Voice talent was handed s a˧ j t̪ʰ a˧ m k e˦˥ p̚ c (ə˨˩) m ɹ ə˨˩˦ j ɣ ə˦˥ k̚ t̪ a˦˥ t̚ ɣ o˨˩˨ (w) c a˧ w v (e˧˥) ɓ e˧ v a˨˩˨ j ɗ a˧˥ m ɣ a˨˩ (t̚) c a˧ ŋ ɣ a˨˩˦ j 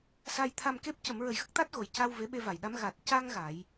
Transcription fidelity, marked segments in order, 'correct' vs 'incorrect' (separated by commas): incorrect, incorrect, correct, correct